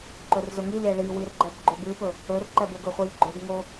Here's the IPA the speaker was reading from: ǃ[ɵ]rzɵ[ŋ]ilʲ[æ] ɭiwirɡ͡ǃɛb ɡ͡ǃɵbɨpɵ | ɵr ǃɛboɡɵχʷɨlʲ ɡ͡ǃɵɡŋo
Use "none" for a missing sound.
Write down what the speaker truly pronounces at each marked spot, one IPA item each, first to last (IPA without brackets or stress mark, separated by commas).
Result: ɵ, ŋ, æ